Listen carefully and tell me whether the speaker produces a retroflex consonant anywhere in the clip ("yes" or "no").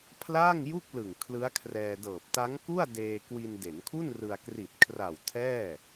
no